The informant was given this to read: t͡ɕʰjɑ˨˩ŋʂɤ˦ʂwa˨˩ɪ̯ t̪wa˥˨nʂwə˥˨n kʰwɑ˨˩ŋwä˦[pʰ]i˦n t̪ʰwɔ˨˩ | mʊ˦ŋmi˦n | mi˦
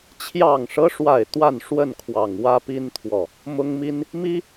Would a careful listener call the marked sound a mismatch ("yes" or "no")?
yes